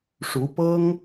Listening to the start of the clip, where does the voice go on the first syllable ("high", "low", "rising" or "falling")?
rising